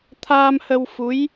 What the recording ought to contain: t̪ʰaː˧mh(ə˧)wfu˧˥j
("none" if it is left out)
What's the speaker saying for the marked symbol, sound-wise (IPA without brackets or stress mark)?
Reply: ə˧